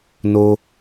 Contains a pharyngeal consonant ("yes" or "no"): no